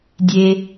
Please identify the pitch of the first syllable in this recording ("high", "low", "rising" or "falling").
low